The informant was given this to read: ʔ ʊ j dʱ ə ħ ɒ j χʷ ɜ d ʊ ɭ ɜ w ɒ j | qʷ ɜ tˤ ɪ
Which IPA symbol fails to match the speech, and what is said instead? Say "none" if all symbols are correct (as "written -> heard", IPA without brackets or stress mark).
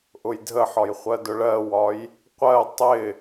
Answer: none